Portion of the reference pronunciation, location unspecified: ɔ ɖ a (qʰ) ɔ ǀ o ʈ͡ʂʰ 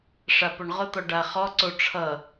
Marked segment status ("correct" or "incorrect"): incorrect